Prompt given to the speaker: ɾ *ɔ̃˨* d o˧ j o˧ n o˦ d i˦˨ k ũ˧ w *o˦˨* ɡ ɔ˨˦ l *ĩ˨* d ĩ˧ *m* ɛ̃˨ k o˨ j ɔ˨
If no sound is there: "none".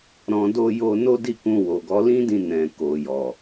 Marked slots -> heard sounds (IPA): ɔ̃˨, o˨, ĩ˦, n

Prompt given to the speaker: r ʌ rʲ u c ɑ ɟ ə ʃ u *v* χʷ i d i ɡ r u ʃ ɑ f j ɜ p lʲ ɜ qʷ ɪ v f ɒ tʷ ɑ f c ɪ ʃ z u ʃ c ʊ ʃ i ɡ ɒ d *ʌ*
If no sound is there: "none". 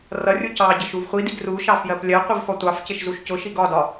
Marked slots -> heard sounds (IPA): v, ɒ

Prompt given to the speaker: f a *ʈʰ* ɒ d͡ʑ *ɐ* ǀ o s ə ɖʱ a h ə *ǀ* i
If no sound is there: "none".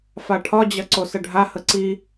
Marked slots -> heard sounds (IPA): ʈʰ, ɐ, ǀ

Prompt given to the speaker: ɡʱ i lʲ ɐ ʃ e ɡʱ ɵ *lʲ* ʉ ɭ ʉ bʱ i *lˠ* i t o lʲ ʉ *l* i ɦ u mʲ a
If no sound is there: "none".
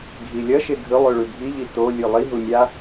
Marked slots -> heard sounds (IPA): lˠ, ʎ, lˠ

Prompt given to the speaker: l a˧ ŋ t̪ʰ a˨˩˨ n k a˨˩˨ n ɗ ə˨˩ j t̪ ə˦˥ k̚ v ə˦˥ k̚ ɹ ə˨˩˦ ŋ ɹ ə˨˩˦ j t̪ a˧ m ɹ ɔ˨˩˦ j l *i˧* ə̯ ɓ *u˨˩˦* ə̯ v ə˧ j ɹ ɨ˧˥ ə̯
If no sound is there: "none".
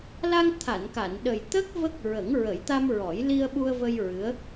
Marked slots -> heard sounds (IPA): i˧, u˧

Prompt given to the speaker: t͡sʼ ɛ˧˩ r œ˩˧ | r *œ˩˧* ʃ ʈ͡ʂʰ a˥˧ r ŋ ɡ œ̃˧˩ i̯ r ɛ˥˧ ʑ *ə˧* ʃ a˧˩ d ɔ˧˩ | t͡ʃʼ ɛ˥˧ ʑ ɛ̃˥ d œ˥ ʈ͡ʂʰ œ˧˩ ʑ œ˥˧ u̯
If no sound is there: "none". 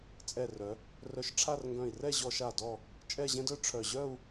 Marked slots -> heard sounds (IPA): œ˧˩, ɔ˧

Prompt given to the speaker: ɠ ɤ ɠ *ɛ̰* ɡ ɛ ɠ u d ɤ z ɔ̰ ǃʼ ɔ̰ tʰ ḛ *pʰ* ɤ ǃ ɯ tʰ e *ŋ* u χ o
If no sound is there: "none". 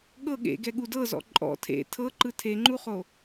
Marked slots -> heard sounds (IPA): ḛ, tʰ, ŋ͡ǃ

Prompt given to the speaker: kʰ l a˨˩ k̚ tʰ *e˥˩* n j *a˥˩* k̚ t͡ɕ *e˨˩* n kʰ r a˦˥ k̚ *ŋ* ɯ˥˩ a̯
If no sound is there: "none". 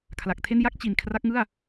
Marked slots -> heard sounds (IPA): e˥˩, a˥˩, i˨˩, ŋ

